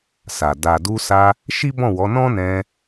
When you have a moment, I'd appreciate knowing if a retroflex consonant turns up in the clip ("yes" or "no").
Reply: no